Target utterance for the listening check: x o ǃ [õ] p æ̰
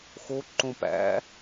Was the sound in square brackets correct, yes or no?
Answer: yes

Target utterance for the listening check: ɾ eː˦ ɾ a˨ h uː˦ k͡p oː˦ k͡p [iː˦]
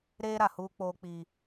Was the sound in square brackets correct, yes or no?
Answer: yes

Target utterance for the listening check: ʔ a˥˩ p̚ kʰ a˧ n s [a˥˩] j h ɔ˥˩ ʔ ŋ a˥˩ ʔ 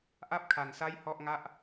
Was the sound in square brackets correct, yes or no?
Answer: yes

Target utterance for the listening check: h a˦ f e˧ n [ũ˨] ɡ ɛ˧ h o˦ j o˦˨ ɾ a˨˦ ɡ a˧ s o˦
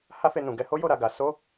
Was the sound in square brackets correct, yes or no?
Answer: yes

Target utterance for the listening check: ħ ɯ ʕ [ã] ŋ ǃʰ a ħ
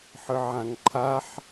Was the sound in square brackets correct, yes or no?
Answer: yes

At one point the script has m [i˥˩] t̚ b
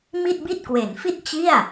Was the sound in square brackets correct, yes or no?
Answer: yes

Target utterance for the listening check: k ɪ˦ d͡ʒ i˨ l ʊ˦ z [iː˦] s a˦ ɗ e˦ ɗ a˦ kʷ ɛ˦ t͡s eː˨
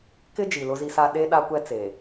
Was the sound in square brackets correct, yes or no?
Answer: no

